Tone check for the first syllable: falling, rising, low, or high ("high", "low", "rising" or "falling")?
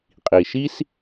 low